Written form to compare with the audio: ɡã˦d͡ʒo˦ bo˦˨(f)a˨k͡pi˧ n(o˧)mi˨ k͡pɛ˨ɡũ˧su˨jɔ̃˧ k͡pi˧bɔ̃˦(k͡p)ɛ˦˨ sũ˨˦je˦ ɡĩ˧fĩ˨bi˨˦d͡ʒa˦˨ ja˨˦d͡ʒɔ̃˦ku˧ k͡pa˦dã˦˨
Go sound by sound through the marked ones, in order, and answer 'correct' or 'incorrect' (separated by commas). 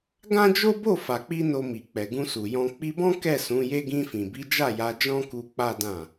correct, correct, incorrect